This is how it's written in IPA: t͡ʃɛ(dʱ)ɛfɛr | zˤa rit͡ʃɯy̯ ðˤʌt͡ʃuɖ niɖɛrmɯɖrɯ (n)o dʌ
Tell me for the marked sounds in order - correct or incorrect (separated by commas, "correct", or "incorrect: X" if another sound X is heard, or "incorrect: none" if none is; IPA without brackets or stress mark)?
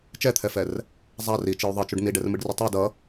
incorrect: t̪ʰ, incorrect: tˤ